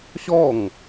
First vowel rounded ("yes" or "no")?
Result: yes